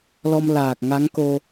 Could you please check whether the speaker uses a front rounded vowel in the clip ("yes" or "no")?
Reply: no